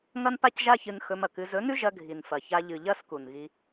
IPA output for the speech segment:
ŋ ɐ˦ n p a˦ c ʒ a˦ ç ɨ˧ n x ɵ˧ m ɐ˨ k ɨ˧ z ɵ˨˦ n ʉ˦ ʒ ɐ˧ ɡʱ i˨ n f ɐ˨ ç a˧ ʎ ɨ˨ ʎ ɐ˦ s k u˨ n ɣ i˧

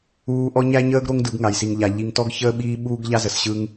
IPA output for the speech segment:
uː˦ ʔ ɔ˦ ɲ æ˦ ɲ əː˦ ɡ ɾ o˦ ŋ d ɯ˨˦ ɡ ŋ a˨ j s i˨ ŋ ʎ a˨ ʎ i˨ ŋ t ɔ˦ ɡ ç əː˦ ɓ iː˦ ɓ uː˦ ɡ ʎ a˦ z ə˨ s ɕ ɯ˦ ŋ

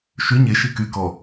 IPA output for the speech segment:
ʃ y ɲ e ʃ i k y k ɔ

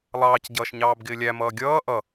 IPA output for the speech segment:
lˠ ɑː c ɟ ʌː ʃ ɲ ɑː b ɡ ɪː lʲ æ m ʌː ɡʲ ʌː ʔ ʌ

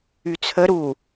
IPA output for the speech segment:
y t͡sʰ ə ɾ u

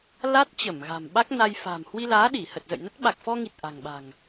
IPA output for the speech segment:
l a˦˥ t̚ t͡ɕ ə˧˩ m ɣ a̤˨˩ m ɓ a˦˥ k̚ n a˧ j f a̤˨˩ m h w i˧ l aː˨˦ ɗ i˧˩ h ə˨˩ t̚ z ə̰˧˨ j n ə˦˥ t̚ ɓ a˨˩ k̚ f ɔ˧ ŋ i˨˩ t̚ ʔ a̤˨˩ ŋ ɓ a̤˨˩ ŋ

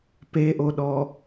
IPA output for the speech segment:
p e ʔ o ɗ ɔ

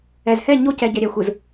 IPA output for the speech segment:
ɛ˨ z h ɛ˦˨ ɲ o˦ c ɛ˨ ɟ ɛ˨ ɾʲ ɛ˨ xʷ ɯ˨ z

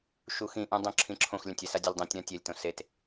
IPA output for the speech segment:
ʃ u x ĩ ʔ ũ dˤ õ ǁʰ ĩ ǁʰ õ x lʲ ã tʲ ɛ s a dʲ e lʲ dˤ ẽ tʲ ɾ ã tʲ ɛ lʲ t õ s e t

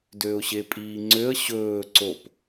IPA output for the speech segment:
d øː ʊ̯ ɕ e pʼ iː ŋ͡ǀ ø ə̯ ɕ ɵː ǀ o p

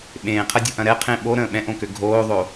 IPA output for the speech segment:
ɓ ẽː qʰ ɐ dʲ o̤ ʔ ɐ̃ ɾ ɛ qʰ ẽ ɓ o ɾ ə̃ː ɓ ɛ̃ ʔ õ k ø ɡʱ oː ðˤ o

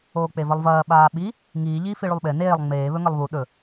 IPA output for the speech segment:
oː k͡p e v ɐ lˠ v ɐː ɓ aː ɓ i | ŋ iː ʎ iː f i ɭ u lˠ ɓ e n eː lˠ ŋ͡m eː β ɵ ŋ ɐ lˠ β u ɗ ɵ

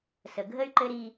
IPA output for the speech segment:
s ə˨ ɡʱ ə˦ y̯ ǃ ɘ˦ ɾ i˦

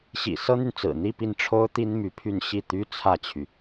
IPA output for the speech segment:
ɕ ḭ˨˩ s ɤ˥ n̪ y˨ n t͡s ɹ̩˨˩ n̪ i˥˧ p i˥˩ n ʈ͡ʂʰ o˥ ʊ̯ t̪ i˥ n m y˧˥ pʰ y˥˧ n ɕ i˥˩ t̪ y˥ t͡sʰ ä˥˩ t͡ɕʰ y˩

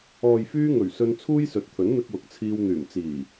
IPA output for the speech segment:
ɔː˨ j f yː˧ ŋ ɵ˨˩ ɥ s ɵ˧ n t͡sʰ uː˥ j s ɵ˨˥ t̚ t̪ʰ ɵ˨˥ n n̪ ɪ˧ k̚ w ʊ˨ k̚ t͡sʰ iː˧ w n̪ yː˨˩ m t͡s iː˨˩

